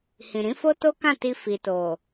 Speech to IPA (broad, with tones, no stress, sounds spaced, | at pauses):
h ĩ˨ ɾ ĩ˨˦ f o˦ t o˦ k ã˦˨ t i˧ f i˨ t o˨